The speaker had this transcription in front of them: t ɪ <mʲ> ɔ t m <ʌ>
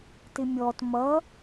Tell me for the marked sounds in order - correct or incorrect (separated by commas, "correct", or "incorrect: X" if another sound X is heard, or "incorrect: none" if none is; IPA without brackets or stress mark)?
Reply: correct, correct